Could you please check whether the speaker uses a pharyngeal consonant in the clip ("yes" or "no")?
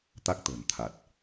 no